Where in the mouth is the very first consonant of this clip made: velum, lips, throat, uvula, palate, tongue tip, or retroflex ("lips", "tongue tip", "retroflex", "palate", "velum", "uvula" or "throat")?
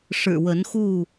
retroflex